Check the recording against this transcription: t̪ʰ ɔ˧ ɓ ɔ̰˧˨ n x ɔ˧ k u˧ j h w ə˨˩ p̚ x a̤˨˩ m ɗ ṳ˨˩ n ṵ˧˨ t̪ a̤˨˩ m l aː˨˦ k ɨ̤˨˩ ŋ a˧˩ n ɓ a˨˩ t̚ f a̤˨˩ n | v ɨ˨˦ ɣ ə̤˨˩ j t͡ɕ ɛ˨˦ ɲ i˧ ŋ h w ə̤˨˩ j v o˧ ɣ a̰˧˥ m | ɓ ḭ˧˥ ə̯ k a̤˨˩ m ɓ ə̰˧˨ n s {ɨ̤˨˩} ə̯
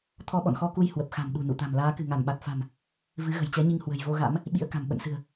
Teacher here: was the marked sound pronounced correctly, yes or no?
yes